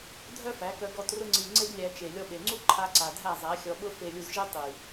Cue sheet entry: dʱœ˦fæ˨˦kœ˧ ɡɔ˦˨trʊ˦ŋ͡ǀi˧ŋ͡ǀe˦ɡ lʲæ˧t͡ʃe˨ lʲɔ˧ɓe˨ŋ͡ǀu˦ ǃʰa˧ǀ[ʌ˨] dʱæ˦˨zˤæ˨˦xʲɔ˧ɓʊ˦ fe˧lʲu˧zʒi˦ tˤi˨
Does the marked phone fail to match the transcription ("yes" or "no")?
yes